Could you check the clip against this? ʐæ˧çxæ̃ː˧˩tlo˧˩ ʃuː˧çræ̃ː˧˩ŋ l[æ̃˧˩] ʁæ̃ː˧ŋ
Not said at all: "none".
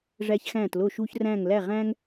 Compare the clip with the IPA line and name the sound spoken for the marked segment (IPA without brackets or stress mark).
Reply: æ˧˩